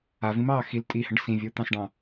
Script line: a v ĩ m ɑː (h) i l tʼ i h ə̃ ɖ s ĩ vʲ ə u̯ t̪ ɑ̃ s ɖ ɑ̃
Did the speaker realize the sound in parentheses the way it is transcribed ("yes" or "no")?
no